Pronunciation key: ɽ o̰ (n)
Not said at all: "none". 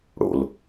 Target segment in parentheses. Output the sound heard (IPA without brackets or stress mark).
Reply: l